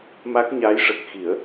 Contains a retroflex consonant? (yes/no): yes